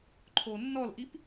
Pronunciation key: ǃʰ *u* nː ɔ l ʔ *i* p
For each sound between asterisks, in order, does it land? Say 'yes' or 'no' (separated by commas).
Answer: no, yes